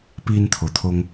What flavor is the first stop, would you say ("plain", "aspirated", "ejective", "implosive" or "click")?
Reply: plain